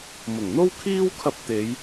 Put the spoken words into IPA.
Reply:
mʊ˨˩ŋ n̪o˥wkʰiː˥wkʰɐ˧p̚t̪e˨˧j

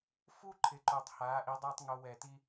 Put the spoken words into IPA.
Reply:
fu˦ ǃʰɪ˨ǃo˨tˤ haː˨˦ʔi˨˦dˤoː˦tˤŋo˧ wɛ˨ti˦

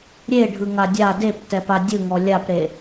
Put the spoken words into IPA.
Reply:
ɾʲeɖʱɯ ŋadʲa deptɛpa dʲɯŋɔ lʲapɾe

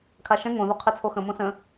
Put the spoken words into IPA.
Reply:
kʰaʃɛ̃ ŋõ ðoqʰet͡sʰoxə̃ mõsə̃

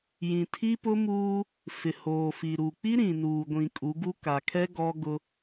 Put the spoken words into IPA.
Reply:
jĩ˨tʰi˦pʊ˦muː˦ | fɪ˨hoː˨fi˨ɾu˨ k͡pi˦ɾĩ˨nuː˨ɡʷĩ˨ kʼu˨˦ɡu˦ ka˨kʰɛ˦ ɡɔ˦ ɡʊ˦

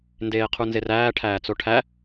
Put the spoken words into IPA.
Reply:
ndeːqʰunzeræː ʈʰæːt͡soʈʰæ

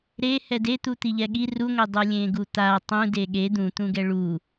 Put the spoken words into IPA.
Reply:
ɾe hɛdet̪u t̪iʎɛɠi ruŋʷe dˤɯlʲẽɡut̪a tˤũde ɠe d̪ũt̪ũɡɛ ɭu

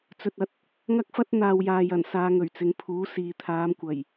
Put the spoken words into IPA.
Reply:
t͡sɵ˨t̚ɐ˨t̚ | ŋɐ˥k̚fɐ˥t̚ n̪aː˨wjaː˨jɐ˨˩n saː˧ŋɵ˨˩ɥt͡sɪ˨˧ŋ pʰuː˨˥siː˨ t̪ʰaː˨˧mkʷɐ˨˩j

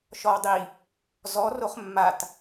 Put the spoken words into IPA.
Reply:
ʃɔwdˤi | zɔ roχmːat

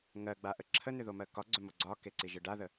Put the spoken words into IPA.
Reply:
ŋɜɡ͡baʔə ǁʰənʏðomɜ kɒɡ͡ǀʏmo ɡ͡ǀɒkeǀiʒɯ ɖaðə

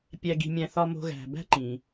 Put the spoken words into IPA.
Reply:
pʲæ˨ɡi̤˨mʲæ̃˨ θɒ˨mo̤˨ɣæ̤˩ bæ̤˦ǃĩ˩

